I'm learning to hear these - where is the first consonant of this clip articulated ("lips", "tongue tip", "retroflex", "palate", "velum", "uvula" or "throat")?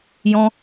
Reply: palate